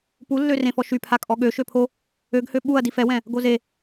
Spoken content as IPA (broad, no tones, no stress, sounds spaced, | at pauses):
p u lː ø r ẽ f ɔ ʃ y pʰ a kʼ ɔ ɠ ø ʃ ø pʰ o | ø ɡ h ø ɓ u ɐ̯ d i f ɛ w ɛ̃ | ɡ o z e